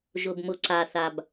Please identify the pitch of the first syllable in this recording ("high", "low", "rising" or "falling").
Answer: low